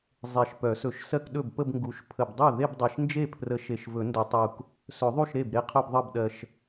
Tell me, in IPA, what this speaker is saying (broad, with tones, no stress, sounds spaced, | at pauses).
zˤ e˨˩ ʃ p œ˨˩˦ s ɵ˨˩˦ ʃ s ɜ˥˧ k ɗ ɵ˥˩ b p ə˥˧ b ŋ ɡ u˨˩˦ ʃ pʰ ə˨˩ b dˤ œ˥˩ ð e˥˧ b dˤ e˨˩ ʃ n d͡ʒ e˥˩ pʰ r ə˨˩˦ ʃ e˨˩ ʃ v ɵ˨˩˦ n d ɵ˨˩˦ tˤ u˨˩ k | s ɵ˨˩˦ ðˤ u˥˩ ʃ ɾ e˥˩ b ɾ e˥˧ qʰ œ˥˧ b ðˤ ɤ˥˩ b ɗ ɜ˨˩ ʃ